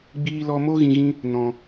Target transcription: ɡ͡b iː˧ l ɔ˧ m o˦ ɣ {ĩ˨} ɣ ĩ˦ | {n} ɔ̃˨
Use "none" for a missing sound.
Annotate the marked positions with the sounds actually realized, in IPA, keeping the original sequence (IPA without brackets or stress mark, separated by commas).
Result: ĩ˧, n